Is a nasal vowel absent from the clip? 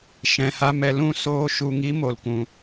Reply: no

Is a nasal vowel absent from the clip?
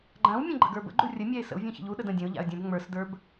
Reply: no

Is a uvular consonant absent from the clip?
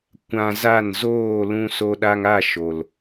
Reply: yes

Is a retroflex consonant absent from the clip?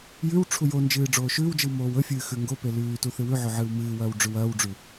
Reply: no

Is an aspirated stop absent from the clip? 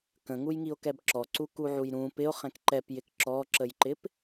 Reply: yes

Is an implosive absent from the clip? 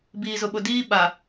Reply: no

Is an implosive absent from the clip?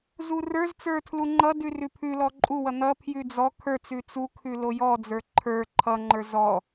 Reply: yes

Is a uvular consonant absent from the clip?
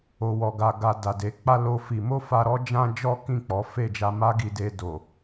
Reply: yes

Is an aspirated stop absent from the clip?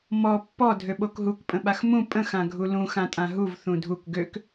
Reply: yes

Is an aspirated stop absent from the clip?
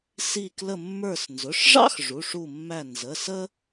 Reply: yes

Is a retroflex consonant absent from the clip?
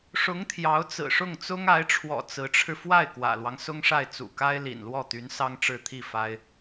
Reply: no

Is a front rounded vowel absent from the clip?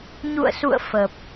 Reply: yes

